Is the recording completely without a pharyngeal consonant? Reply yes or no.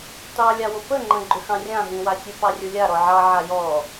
no